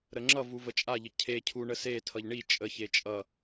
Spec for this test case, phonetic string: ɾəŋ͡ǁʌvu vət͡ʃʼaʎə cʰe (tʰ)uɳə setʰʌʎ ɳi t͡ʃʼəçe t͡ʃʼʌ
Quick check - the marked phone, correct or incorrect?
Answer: incorrect